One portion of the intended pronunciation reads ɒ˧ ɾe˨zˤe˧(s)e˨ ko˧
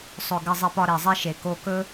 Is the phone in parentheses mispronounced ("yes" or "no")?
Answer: yes